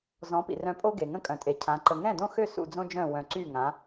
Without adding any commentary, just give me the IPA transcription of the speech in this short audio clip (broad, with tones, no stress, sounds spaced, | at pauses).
z ɔ̃˩˥ p ḭ˩ r œ̃˧ pʼ o˥ ɡ e˩ ŋ ə̃˧ kʼ œ̃˩ tʼ e˩ cʰ ã˩˥ ǃ ə˧ ŋ ɛ̃˥˩ d õ˥˩ x ø˥˩ s ṵ˧ d͡z õ˥ d͡ʒ œ̃˥˩ w œ̃˧ ǀ y˥˩ ŋ ã˩˥